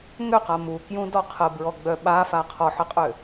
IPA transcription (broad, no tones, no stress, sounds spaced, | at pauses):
ŋ ø q a m u k j ũ d ɔ qʰ ə b ɹ ɔ ɡ͡b œ ɓ a f a qʰ ɔ ħ ə qʼ ø